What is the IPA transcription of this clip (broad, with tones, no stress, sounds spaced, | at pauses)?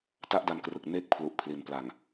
t a˥˩ ʔ d a˧ n k r ɯ˨˩ k̚ n eː˥˩ k̚ pʰ l u˨˩ ʔ pʰ l i˩˦ n p l a˨˩ ŋ